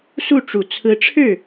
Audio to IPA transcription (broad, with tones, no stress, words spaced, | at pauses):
su˥˩ʈ͡ʂu˨˩ t͡sʰɹ̩˧˥ʈ͡ʂʰɻ̩˥˩